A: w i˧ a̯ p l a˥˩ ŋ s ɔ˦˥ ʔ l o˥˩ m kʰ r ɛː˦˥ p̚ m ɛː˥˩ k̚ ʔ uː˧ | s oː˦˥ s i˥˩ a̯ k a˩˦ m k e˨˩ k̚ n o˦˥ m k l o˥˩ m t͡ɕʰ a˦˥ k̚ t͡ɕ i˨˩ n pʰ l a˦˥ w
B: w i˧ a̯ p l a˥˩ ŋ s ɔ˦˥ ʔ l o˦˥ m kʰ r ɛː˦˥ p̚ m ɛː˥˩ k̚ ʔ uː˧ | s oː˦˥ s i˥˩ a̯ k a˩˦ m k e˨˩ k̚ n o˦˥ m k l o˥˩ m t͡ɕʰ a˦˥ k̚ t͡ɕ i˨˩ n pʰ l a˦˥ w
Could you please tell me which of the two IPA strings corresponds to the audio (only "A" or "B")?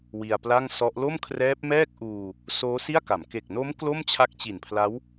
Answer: A